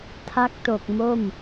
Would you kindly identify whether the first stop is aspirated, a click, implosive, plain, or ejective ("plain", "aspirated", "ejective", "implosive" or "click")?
aspirated